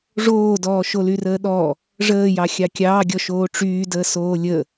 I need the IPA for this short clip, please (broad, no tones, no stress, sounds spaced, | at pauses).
ʐ oː d ɔː ʃ o l y r əː ɗ ɔ | ʐ əː j ɑ xʲ ɑ kʲ ɑː ɡʲ ɔ ʃ oː ʈ͡ʂ yː d əː s oː lʲ ə